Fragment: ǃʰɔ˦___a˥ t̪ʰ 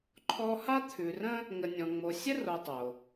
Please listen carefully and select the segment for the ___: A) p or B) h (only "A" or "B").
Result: B